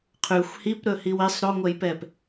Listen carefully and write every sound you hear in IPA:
qʰ ʉ xʷ h i p ɾ ɵ h i w i sˤ ɾ o ŋʷ ɛ j p ɛ p

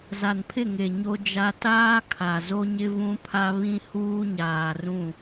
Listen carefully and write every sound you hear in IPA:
z a˨ n pʰ ɪ˦˨ ŋ e˨ ɲ o˦ d͡ʒ a˦ t aː˦ kʰ a˨ z o˦ ɲ ɪ˦ v ũ˦ pʰ a˦ β ĩ˦ h uː˦ ɲ aː˨ r ũ˦˨

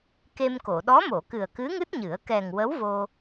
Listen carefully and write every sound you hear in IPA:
k e˧ m k o˨˩˨ ɗ ɔ˧˥ m o˨˩˨ k ɨ˨˩ ə̯ k ɨ˧˥ ŋ ɨ˦˥ t̚ ɲ ɨ˨˩˦ ə̯ k ɛ˨˩ ŋ w ə˧˥ w v o˧

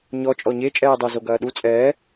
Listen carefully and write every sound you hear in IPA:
ɲ ɔ t͡ʃʼ ɔ ɲ e t͡ʃʼ ɛː dˤ ɛ z o ɡ ɐː ɗ u t͡sʼ ɛː

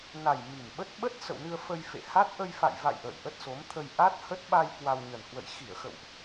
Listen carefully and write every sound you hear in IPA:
n a˨˩ j m i˨˩ m ɓ ə˦˥ t̚ ɓ ə˦˥ t̚ s ə̰˧˨ w n ɨ˧ ə̯ f ə˧ j f ḛ˧˨ h a˦˥ t̚ ʔ ə˧ j f a̰˧˨ j v a̰˧˨ j ʔ ə̰ː˧˨ j ʔ ə˦˥ t̚ s o˨˦ m t̪ʰ ə˧ j ʔ a˦˥ t̚ h ə˦˥ t̚ ɓ a˧ j k w a˧ w ɲ ə˨˩ n h w ə̰˧˨ j x i˧˩ ə̯ x ə̰˧˨ w ʔ

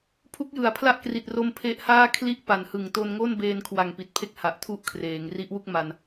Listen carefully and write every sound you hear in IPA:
pʰ u˦˥ k̚ j ɯ˩˦ a̯ pʰ l a˥˩ ʔ k r i˨˩ t̚ r o˧ m pʰ e˦˥ ʔ h aː˥˩ kʰ l i˥˩ ʔ p a˨˩ n h ɯ˨˩ ŋ t o˧ n ŋ o˥˩ n b eː˧ n kʰ w a˨˩ ŋ p i˨˩ t̚ pʰ e˦˥ k̚ h a˨˩ ʔ tʰ u˦˥ ʔ kʰ r eː˩˦ ŋ r i˦˥ ʔ w u˥˩ k̚ m a˧ n

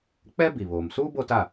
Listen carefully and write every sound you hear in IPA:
k͡p ɛ˦ b i˨ β oː˨ m s uː˦ b o˦ t a˦˨

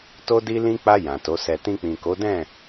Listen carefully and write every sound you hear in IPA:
t o˧ d i˧ l ĩ˧ k͡p a˧ j ã˨ t o˨˦ s ɛ˧ t ĩ˧ k͡p ĩ˨ k o˨˦ d ɛ̃˦˨

